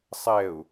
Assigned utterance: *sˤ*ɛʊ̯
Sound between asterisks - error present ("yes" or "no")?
no